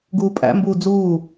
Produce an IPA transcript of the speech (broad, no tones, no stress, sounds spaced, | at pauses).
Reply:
ɡ uː pʼ æ̰ m b uː d͡z uː